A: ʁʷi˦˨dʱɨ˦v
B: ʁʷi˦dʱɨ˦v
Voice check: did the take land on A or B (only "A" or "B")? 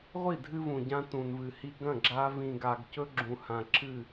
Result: A